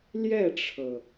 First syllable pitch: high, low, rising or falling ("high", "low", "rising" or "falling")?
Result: falling